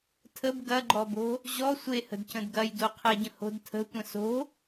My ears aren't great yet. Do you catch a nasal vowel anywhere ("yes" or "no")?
yes